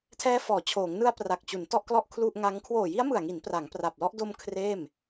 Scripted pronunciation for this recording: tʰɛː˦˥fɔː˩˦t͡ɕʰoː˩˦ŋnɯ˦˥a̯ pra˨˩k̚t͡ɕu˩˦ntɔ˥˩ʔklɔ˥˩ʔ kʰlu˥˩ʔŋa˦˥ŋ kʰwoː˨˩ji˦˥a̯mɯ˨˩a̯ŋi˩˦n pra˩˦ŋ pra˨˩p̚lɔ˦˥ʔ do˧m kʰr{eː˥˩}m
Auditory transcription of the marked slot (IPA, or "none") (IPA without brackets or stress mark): eː˥˩